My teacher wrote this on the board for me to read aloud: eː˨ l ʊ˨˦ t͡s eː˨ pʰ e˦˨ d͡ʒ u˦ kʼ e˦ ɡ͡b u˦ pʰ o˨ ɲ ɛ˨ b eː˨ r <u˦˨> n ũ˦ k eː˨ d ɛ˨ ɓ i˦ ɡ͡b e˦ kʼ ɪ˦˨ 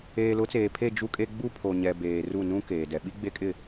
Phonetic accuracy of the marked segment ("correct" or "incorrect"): correct